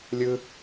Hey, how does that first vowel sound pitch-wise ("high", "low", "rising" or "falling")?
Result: high